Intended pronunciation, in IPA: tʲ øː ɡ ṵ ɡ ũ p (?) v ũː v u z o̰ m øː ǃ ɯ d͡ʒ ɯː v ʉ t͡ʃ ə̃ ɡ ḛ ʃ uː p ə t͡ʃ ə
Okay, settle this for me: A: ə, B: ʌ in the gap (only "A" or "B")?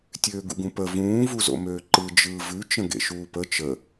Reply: A